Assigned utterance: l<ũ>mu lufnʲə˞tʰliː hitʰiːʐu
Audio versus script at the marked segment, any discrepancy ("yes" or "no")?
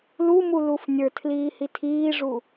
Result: yes